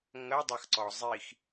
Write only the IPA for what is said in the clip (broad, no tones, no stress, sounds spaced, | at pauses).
ŋ ɐ dˤ ɐ x ǀ ɔ zˤ i x